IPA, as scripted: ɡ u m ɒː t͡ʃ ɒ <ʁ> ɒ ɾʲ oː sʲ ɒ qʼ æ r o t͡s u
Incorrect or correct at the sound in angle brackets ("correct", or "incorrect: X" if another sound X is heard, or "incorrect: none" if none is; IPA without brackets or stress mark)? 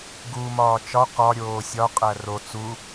incorrect: q